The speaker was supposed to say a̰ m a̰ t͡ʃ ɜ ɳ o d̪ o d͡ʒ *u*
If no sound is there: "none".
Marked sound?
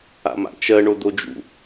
ṵ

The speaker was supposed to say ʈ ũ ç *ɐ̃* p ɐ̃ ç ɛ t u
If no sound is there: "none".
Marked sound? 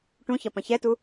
ɐ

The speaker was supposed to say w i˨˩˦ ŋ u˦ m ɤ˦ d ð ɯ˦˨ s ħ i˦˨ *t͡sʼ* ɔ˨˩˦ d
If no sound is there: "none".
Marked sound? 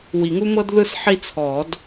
t͡sʰ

